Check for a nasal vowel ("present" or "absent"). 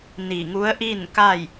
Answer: absent